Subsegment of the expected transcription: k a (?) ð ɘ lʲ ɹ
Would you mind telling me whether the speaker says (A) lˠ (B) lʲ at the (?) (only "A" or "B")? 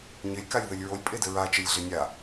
B